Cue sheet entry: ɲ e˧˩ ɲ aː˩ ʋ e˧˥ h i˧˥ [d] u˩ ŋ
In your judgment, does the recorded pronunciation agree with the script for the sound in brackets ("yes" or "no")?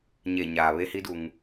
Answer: yes